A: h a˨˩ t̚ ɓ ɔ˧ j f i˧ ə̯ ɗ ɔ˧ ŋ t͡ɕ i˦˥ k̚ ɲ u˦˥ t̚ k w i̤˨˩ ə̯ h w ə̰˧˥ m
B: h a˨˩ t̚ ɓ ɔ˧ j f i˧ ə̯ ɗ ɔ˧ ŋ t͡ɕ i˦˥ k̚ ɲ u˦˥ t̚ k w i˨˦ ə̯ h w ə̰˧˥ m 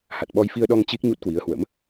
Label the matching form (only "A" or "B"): B